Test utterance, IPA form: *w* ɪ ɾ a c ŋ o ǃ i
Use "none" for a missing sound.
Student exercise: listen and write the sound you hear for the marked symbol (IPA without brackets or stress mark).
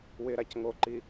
w